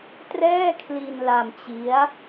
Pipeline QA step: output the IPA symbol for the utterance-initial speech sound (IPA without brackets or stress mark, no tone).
t